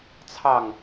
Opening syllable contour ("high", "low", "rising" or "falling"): low